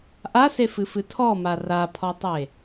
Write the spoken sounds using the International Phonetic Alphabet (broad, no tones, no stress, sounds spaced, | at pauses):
ʔ a s e f ɨ f ɨ tʰ ɔ m a r a pʰ ɔ tˤ e